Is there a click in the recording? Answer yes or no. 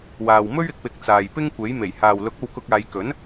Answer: no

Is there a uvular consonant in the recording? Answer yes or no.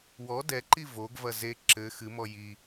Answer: no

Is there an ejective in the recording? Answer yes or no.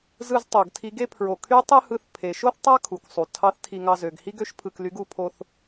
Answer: no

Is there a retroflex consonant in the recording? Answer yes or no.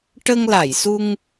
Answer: yes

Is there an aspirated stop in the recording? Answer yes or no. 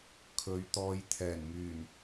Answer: yes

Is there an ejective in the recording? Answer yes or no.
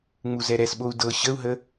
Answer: no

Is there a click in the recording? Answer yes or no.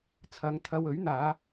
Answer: no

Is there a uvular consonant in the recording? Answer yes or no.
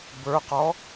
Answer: yes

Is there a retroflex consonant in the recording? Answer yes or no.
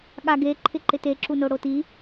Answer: yes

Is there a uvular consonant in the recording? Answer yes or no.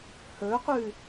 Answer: yes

